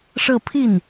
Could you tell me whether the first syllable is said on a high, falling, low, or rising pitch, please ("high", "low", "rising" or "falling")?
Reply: falling